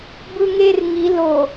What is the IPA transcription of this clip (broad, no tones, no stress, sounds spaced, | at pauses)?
b ɯ ŋ e r ŋ i l o